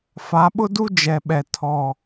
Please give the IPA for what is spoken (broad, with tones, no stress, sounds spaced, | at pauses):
f a˨˦ ɓ ʊ˦ d u˦ d͡ʒ ɛ˨ ɓ ɛ˨ tʰ ɔ˨